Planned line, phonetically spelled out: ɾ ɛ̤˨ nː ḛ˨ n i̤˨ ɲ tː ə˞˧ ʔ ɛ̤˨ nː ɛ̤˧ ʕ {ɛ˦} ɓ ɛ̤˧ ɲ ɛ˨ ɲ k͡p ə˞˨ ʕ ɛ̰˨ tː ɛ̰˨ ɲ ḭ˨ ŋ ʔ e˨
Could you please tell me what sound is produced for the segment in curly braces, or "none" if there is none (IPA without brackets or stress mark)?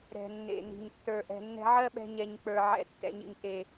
ɜ˦